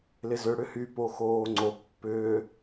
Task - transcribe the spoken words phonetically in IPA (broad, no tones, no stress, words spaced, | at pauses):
lɪzʏ ɽʏhy poxoːŋ͡ǀo pːʏː